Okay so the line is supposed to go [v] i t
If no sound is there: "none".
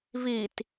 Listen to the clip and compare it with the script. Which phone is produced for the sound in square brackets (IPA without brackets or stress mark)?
v